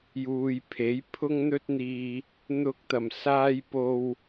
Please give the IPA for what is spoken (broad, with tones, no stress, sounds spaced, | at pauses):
j uː˨ j pʰ e˨˥ j pʰ ʊ˥ ŋ n̪ ɵ˥ t̚ n̪ iː˨ | n̪ ʊ˧ k̚ t̪ ɐ˨˩ m s aː˧ j p o˨ w